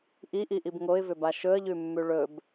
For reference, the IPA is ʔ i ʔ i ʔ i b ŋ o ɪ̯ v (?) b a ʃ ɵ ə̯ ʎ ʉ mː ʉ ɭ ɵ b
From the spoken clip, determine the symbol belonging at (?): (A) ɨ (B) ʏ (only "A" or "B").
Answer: B